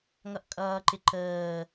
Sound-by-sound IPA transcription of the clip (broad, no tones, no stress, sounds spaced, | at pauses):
ŋ ʌ ʔ kʼ ʌː ǃ ɪ ǃ əː